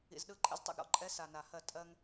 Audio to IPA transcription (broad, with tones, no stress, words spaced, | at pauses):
ḭ˨zɗɯ˥˩ ǃʼə̰˥ztˤɛ̰˥˩ɡɾɔ̰˧˥ǃʼɛ˧˥ sa˨na˨hɜ˥˩ tʼɜ˥ŋ